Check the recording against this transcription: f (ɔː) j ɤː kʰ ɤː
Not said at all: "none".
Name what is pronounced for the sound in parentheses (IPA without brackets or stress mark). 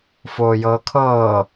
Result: oː